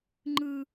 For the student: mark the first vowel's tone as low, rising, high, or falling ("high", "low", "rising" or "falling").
high